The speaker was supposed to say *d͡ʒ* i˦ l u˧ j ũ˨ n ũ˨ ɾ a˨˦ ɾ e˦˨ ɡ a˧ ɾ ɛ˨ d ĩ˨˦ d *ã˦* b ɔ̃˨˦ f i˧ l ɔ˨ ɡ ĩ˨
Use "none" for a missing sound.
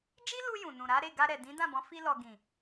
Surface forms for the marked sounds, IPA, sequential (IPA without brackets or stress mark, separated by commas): d͡ʒ, ã˦˨